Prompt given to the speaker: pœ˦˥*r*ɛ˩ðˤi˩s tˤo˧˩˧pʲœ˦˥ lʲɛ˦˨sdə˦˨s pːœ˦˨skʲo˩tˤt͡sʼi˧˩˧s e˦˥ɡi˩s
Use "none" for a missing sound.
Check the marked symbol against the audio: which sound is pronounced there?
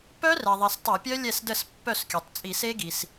r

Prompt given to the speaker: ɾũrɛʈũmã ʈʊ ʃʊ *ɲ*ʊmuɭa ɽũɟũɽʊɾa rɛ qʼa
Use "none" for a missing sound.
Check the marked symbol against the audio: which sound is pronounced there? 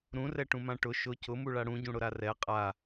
c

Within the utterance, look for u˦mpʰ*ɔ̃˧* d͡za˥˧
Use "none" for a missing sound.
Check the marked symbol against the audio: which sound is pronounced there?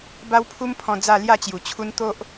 ɔ̃˧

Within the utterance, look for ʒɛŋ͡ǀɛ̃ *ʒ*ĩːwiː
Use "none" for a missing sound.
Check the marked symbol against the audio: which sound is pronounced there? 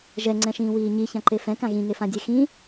ʃ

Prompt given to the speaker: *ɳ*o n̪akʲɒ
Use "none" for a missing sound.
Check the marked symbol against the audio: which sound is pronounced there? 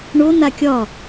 ɳ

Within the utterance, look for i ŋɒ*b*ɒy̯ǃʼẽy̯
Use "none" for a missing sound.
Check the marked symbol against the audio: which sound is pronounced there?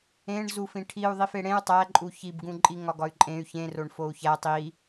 ɡ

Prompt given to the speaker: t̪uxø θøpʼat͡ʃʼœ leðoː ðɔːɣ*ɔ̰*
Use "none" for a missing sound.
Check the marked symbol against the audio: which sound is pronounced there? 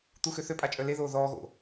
o̰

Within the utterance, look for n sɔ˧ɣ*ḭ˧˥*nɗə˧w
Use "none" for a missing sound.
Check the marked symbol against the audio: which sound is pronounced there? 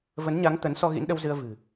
ḭ˧˥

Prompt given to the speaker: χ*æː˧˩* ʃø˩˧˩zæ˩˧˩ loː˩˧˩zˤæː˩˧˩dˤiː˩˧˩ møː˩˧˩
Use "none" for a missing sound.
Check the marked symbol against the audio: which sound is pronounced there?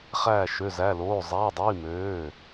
æː˧˩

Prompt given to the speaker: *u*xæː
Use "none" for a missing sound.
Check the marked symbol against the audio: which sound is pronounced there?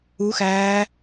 u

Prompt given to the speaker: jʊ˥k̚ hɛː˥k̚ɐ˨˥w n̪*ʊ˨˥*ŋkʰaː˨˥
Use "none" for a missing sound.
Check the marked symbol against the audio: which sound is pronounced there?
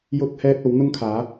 ʊ˥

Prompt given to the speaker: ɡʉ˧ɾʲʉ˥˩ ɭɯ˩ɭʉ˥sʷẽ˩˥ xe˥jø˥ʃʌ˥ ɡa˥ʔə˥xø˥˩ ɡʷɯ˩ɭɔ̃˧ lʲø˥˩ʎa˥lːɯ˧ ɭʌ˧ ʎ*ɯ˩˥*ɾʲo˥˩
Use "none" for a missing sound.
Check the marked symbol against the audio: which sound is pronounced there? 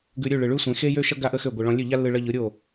ɯ˩˥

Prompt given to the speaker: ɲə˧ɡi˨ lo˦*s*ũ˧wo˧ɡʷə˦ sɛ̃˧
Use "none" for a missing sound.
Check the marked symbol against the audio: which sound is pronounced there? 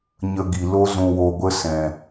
z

